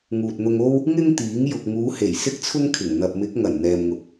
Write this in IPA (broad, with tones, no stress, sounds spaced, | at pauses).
ŋ uː˨ t̚ n̪ ʊ˧ ŋ o˥ w | ŋ ɪ˥ ŋ t̪ iː˨˥ ŋ j ʊ˨ k̚ ŋ uː˨˧ h e˨˩ j s ɪ˥ k̚ t͡sʰ ʊ˥ ŋ kʰ ɪ˨˩ ŋ n̪ ɐ˨ p̚ m ɪ˨˥ k̚ ŋ ɐ˨˩ n n̪ ɛː˨ m ŋ ʊ˨ k̚